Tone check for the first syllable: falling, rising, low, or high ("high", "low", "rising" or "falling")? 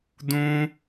high